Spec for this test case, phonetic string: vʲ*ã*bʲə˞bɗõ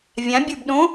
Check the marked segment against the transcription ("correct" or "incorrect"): correct